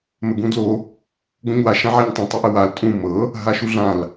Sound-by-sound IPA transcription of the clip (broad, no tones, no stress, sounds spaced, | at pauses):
m ə ɡ ũ d l o | ɡ õ ɲ w a ʃ ã ʕ a ɲ tˤ ũ tˤ o ʔ ə w a l tʼ ũ m ɤ | ɦ a ʃ u ɮ ã l